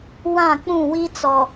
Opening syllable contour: falling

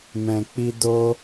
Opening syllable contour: low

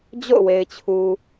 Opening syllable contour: falling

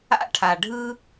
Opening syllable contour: high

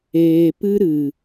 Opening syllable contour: low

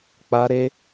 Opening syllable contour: high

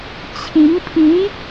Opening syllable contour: rising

